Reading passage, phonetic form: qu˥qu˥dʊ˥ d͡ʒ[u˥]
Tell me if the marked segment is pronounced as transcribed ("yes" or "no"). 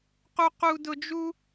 yes